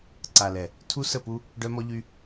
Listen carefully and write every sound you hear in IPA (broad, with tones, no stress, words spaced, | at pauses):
ǀa˨lɛ˨ | tʰu˦sə˦˨pu˦ | ɖœ˦mɔ˦ʎy˦